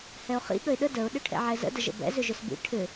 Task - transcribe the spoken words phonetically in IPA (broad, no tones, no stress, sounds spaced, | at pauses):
h ɛ ʊ̯ χ ḭ ɠ ə ɪ̯ ɗ ə d ə ʊ̯ ɗ ʏ ʈʰ ɛ̰ ʕ ɛ z ə̰ d ə ʒ ə̰ b ɛ̰ z ʏ ʒ ʏ s b ḭ ʈʰ ʏ